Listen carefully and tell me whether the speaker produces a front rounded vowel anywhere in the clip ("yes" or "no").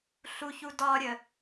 no